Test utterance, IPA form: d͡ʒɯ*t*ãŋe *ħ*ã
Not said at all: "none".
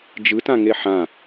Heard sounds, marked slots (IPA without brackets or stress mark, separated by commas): t, ħ